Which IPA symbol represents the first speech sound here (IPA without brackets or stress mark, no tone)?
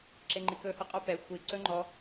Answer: ǁ